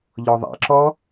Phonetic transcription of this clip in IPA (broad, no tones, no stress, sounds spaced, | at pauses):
ʎ ɔ ðˤ a̰ ǁ ɔ